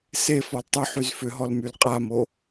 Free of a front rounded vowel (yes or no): no